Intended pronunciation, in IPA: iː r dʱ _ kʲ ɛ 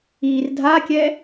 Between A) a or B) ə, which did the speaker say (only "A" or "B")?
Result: A